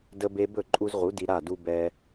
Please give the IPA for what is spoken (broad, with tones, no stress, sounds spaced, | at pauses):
d ə˧ b e˧ b ɵ˦˨ ǃʼ u˧ z ʁ u˨˦ d i˧ ɾ a˦˨ d u˦ b ɛ˦